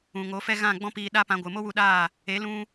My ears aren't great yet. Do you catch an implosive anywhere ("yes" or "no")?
yes